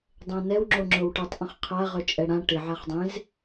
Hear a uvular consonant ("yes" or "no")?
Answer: yes